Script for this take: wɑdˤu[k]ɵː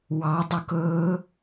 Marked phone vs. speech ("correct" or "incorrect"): correct